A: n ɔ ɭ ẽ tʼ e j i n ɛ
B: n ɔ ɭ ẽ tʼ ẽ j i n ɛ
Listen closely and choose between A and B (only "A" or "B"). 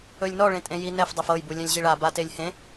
B